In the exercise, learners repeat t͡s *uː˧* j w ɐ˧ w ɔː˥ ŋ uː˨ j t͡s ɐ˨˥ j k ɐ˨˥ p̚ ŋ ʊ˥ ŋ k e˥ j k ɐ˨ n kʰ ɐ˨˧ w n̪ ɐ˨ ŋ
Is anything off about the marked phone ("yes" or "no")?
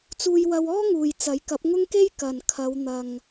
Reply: no